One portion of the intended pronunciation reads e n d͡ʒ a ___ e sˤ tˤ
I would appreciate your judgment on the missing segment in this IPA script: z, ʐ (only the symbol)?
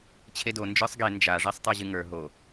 ʐ